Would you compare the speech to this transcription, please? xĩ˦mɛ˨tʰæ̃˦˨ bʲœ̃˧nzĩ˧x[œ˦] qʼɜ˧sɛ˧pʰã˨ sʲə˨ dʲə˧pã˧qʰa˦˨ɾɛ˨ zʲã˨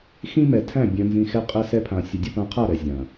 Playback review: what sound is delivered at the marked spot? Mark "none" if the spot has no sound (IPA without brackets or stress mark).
ɛ˦